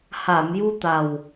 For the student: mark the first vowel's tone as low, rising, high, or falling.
low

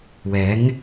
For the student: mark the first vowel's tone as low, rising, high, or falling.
rising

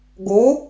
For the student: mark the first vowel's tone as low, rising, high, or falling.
rising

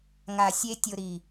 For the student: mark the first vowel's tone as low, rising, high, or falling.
low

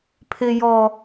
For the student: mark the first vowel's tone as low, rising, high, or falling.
high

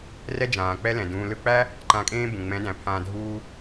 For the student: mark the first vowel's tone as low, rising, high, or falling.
high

